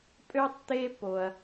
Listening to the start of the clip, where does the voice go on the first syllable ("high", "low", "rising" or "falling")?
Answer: high